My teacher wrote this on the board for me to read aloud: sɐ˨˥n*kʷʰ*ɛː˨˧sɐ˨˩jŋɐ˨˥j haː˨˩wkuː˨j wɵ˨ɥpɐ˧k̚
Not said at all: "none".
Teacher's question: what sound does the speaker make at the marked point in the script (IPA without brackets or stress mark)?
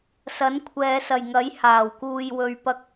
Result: kʷʰ